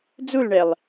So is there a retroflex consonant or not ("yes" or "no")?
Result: yes